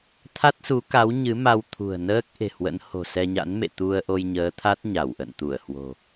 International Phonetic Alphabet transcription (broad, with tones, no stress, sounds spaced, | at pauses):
t̪ʰ a˦˥ t̚ s u˨˦ k a˨˦ w ɲ ɨ˨˦ m a˧ w t̪ʰ ṳ˨˩ ə̯ n əː˦˥ k̚ ʔ e̤˨˩ h w ə̰˧˥ n h o̤˨˩ s ɛ˧ ɲ a̰˧˥ n m ḛ˧˨ t̪ u˧ ə̯ ʔ o˧ j ɲ əː˨˦ t̪ʰ a˦˥ t̚ ɲ a˧˩ w ʔ ə̰˧˨ n t̪ u˧˩ ə̯ h w o̤˨˩